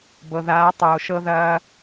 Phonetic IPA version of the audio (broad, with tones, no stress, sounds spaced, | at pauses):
b ɤ˨ ð aː˨˦ tˤ oː˨ ʃ ɤ˦ ð ɐː˦